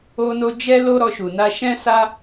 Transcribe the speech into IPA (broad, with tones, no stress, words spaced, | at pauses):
o˦no˦ d͡ʒɛ˦lo˦ ɾɔ˧ʃu˨na˧ ʃɛ̃˦sa˦